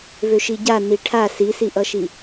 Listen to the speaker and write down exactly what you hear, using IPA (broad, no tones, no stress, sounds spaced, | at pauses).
v ø ʃ i ɟ a n i ʈʰ a s i s i ʔ ʌ ʃ i